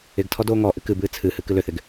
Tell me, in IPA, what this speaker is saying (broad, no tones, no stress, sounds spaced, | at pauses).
ɪ ɡ tʰ ɔ d oː ŋ ɔ ʔ ɨ k ɨ b ɨː t͡sʰ ɨ h ɨ k ɨ l ʏ θ ɪ ɡ